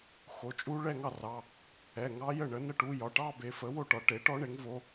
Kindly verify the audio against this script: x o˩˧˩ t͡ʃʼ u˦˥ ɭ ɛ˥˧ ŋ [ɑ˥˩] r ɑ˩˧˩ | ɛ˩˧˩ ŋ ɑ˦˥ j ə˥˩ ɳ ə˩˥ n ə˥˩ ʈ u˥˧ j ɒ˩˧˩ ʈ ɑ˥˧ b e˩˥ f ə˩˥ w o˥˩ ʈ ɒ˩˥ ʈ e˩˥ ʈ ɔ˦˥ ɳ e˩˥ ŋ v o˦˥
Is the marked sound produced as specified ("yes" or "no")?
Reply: yes